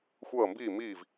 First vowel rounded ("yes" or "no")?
no